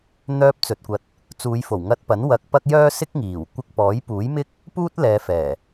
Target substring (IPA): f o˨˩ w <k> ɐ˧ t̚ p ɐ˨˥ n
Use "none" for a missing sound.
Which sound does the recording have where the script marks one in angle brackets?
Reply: ŋ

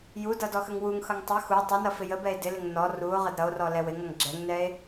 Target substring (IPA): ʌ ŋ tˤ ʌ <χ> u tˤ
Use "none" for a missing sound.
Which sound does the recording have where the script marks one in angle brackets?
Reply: x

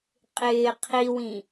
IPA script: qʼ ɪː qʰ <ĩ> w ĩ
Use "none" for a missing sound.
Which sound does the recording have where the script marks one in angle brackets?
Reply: i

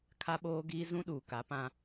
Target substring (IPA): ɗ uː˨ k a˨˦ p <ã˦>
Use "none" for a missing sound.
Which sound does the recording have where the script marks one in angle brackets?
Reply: ã˦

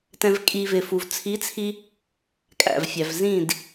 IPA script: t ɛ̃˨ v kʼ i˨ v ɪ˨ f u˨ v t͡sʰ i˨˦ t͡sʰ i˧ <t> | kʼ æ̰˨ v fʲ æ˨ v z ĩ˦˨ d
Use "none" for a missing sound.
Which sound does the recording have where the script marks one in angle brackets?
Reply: none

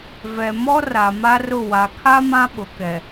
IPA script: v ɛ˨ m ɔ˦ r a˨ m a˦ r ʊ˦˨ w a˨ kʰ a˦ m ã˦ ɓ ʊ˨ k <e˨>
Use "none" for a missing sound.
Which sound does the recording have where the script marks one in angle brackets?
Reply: ɛ˨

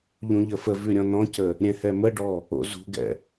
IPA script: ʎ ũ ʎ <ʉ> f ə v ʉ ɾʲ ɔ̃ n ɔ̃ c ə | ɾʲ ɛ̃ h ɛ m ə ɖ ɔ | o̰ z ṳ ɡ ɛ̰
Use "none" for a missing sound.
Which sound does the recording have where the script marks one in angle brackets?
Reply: ə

